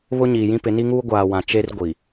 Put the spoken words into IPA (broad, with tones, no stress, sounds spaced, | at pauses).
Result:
β ʊ˦ ɲ iː˨ j ĩ˦ p ɪ˨˦ n i˦ ŋ uː˦ ɡʷ aː˨ w ã˨ t͡ʃ e˦ r ɡʷ i˨